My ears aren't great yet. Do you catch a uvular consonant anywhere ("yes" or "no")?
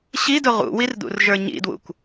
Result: yes